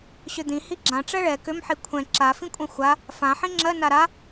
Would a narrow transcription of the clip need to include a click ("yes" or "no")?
yes